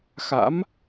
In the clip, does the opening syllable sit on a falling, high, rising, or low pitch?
rising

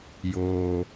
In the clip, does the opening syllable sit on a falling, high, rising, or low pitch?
low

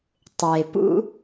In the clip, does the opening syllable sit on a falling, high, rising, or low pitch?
low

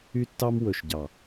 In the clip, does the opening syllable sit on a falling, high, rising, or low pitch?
high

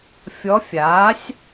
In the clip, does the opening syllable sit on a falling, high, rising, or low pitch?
rising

